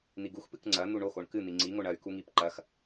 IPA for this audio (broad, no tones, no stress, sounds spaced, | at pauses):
n̪ i ɡ u x p ɨ k ŋ͡ǀ ɐ n̪ u ɳ o x o ɳ k ɨ n̪ i ŋ͡ǀ i ŋ o ɳ ɐ y̯ k u ŋ i p ǃ ɐ x